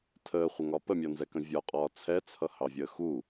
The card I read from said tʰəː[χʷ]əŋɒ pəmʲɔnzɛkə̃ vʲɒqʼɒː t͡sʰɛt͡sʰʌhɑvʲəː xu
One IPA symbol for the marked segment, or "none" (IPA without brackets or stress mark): χʷ